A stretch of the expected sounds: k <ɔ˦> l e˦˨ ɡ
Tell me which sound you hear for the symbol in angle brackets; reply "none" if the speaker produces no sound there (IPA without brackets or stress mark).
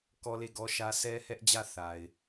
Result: ɔ˦